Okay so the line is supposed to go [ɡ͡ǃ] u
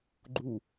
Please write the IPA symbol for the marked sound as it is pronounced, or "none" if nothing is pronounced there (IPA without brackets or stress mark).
ɡ͡ǃ